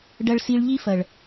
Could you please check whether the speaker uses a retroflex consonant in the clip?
yes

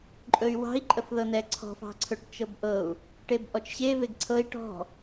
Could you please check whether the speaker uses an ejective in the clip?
yes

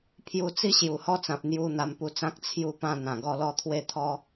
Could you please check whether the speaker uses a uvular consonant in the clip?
no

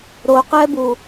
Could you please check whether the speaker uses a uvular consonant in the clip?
yes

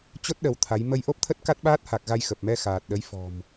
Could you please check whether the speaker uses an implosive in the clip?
yes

